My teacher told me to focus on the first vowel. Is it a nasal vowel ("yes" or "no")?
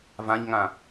yes